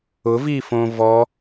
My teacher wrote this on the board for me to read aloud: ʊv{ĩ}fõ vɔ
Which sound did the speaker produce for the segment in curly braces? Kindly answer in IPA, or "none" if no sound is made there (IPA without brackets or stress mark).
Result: i